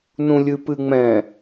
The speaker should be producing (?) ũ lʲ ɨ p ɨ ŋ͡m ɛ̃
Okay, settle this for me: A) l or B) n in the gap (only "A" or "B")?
B